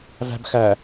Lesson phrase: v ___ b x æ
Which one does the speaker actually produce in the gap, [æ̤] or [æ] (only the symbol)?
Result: æ̤